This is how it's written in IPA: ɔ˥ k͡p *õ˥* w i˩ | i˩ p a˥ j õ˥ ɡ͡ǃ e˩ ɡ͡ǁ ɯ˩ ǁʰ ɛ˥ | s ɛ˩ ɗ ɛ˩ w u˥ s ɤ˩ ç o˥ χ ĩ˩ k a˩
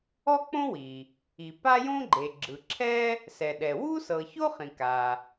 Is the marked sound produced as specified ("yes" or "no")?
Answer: yes